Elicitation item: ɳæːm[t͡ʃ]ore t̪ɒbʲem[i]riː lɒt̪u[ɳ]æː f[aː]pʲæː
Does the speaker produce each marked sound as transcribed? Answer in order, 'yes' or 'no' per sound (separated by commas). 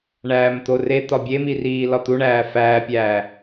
no, yes, yes, no